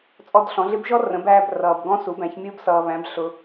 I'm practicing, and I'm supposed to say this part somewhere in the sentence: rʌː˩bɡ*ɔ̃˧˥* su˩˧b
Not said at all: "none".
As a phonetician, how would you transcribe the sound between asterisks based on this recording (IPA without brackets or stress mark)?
ɔ̃˧˥